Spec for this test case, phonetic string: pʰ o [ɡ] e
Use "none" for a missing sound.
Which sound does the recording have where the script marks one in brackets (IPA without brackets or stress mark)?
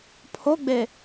ɡ͡b